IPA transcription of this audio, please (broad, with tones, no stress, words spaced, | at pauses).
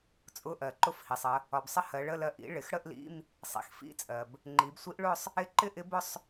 t͡sʼʊ˧˥˧ʔɜ˩ ǃʊ˧˥fhi˩sˤə˩˧ | ɒ˩bsˤə˧˥ hɜ˩˧ɭə˧˥˧ lɜ˧ʔḭ˧˥ ɭɪ˩˧xɽə˥˧ʔlḭ˧˥˧m | sˤḭ˩˧xfḭ˧˥˧t͡sʼɜ˩b | ŋ͡ǃi˩˧bsʷi˧˥ʔɭʊ˥˧sˤ | ɪ˧˥ǃɪ˥˧ ʔɪ˧˥bʊ˥˧sˤ